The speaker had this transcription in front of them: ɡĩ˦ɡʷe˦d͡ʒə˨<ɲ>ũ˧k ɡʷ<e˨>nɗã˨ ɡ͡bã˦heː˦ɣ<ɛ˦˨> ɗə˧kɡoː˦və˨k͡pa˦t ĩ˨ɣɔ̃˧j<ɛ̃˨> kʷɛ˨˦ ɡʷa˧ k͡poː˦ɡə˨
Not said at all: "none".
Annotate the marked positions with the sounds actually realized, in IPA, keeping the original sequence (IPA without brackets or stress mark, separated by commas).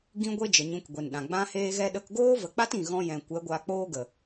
ɲ, e˨, ɛ˦, ɛ̃˨